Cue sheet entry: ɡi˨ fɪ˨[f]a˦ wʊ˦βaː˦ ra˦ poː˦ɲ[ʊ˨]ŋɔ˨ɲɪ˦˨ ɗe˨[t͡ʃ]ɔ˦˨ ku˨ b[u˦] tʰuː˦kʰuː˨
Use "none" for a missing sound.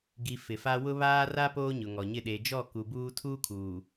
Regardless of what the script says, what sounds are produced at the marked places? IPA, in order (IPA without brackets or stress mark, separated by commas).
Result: f, ʊ˨, d͡ʒ, uː˦